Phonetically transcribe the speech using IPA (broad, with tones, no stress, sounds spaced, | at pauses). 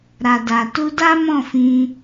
ɾ a˨ d a˨ t u˧ d a˦ m ɔ̃˦˨ f ĩ˧